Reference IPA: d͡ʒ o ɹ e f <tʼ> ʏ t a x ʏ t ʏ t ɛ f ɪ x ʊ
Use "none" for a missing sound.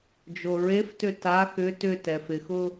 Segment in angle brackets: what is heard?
t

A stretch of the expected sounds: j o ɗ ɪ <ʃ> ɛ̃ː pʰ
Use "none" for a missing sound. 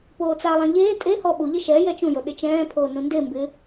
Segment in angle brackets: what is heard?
t͡ʃ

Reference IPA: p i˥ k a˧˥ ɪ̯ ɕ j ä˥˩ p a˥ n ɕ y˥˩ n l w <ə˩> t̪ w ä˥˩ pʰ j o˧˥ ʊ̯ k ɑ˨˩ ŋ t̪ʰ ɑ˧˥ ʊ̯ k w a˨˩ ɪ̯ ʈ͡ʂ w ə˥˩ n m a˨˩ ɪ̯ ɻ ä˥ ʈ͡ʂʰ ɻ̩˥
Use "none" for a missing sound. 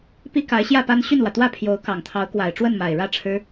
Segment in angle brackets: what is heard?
ä˩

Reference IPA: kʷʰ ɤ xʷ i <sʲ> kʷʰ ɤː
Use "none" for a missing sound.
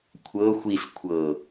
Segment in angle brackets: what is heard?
s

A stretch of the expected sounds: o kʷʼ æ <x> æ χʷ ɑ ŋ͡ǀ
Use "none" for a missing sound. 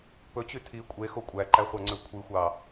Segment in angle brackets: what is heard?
ǃ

